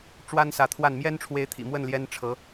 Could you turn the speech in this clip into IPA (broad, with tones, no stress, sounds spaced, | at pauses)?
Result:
ʈ͡ʂ w a˥ n s ä˧˥ t̪ʰ w a˥˩ n m j ɛ˥ n ʈ͡ʂʰ w e˧˥ ɪ̯ t̪ʰ ḭ˨˩ m w ə˥˩ n l j ɛ˥ n ʈ͡ʂʰ ɤ˧˥